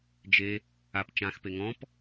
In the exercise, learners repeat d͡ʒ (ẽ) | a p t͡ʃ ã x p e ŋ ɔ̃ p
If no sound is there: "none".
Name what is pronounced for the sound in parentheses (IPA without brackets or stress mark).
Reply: e